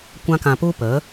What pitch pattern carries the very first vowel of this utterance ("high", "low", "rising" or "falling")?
high